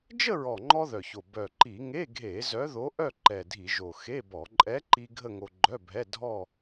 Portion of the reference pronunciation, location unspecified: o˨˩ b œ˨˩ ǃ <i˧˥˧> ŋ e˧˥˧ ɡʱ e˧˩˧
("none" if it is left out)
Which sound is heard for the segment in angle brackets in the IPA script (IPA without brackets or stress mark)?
i˧˩˧